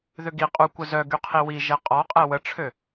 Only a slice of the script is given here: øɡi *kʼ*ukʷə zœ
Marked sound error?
yes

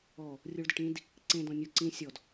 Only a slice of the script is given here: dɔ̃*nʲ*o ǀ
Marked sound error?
no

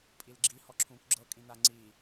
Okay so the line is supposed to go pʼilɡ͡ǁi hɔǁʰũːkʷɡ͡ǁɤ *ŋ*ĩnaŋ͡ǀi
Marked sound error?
yes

